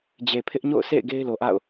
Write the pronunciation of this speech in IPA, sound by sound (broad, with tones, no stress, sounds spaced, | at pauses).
d͡ʑ e˨ pʰ ɪ˦ ʔ ɲ o̰˦˨ ʊ̯ s ḛ˦˨ ɪ̯ ɡ e˦ ɪ̯ l o˨ ʔ a̰˦˨ ʊ̯